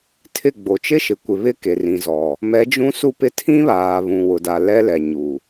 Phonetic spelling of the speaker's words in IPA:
tʰɪ˦˨ ɡ͡bo˨t͡ʃɪ˦ ʃɪ˨kʷɪ˨ βɪ˦ ke˨rĩ˨zɔ˨ | mɛ˨˦d͡ʒũ˦ su˦pɪ˦ tʰĩ˦βaː˨ βũ˨wʊ˨da˨ lɛ˦lɛ˨ɲu˨

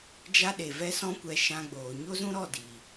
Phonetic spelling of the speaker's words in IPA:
d͡ʒa˦ ɗe˨vɛ˦sɔ̃˦kʷɛ˧ ʃã˧ɡ͡boː˨ ɲo˦zũ˦ɾɔ˦˨diː˨

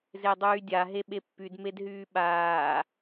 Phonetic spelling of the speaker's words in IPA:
zedˤyːdʲa ɦeɓepːyd medɦyːɓaː

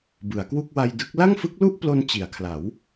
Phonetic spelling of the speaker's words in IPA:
bɯ˩˦a̯kwu˥˩k̚ wa˧jdɯ˦˥k̚ la˥˩ŋfɯ˦˥k̚lu˥˩ʔplo˧n t͡ɕi˩˦a̯kʰla˩˦w

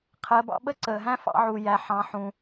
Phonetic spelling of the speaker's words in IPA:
qʰɜ˩˧bɑ̰˧ɓə˥ ǀəː˩ɦæ̃˥fɑ̰˧ʕu˩ jæ˩ħɑ̃˩˧ħũ˩

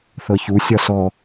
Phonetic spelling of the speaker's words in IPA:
θɤçu sʲɒsɔ

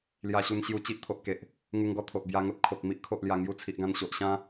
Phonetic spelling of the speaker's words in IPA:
lja˧ɕu˧n ɕju˧t͡ɕi˦ʔt̪ʰo˨ʔ ke˨ʔ | ŋu˧ŋɡɔ˧t̪ʰo˨ʔ bja˧ŋo˦t̚kʰo˨k̚ mi˦ʔkʰo˨ʔlja˨˩ ŋju˧t͡sʰi˨ʔɡã˧n ɕo˨ʔɕã˦

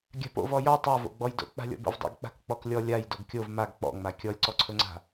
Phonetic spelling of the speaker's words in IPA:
ɡʲa̤po̰v ɔjɔ tˤavo̰ɡ͡bɔjdo̰ k͡pa̤lʲɔ̰bo̰vdˤo̰ɡ k͡pa̤kk͡pɔklʲɔ lʲaj doɡkʲov maɡ k͡pɔ̰ŋ͡ma kʲɔlʲǀɔǀʰɵŋ͡ǀa̤

